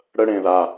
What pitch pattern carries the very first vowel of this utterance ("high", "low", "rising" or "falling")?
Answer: high